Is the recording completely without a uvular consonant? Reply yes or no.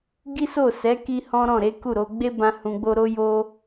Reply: yes